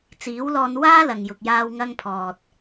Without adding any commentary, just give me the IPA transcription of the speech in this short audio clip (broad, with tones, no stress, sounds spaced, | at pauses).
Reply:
t͡s iː˨˥ w l ɔː˧ n w aː˥ l ɐ˨ ŋ j ʊ˨ k̚ j aː˧ w ŋ ɐ˧ ŋ pʰ ɔː˨ t̚